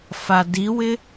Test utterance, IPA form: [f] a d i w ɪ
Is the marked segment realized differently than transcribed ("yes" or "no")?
no